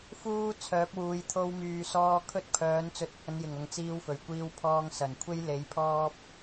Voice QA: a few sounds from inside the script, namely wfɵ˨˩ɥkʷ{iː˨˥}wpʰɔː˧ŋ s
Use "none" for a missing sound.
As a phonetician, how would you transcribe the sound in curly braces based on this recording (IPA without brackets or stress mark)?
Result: iː˧